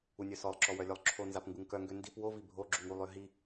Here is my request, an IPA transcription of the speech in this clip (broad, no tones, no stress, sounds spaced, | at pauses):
u nʲ œ s ɔ lˠ ǁ ɔ w œ lʲ œ lˠ ǁʰ o n z a p ŋ ɡ u ŋ k œ ŋ ɡ ø n d i p w o v i bʱ o ɡ͡ǁ u ŋ u lˠ ø ɦ i